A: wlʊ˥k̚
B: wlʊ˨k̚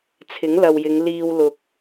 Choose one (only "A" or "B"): B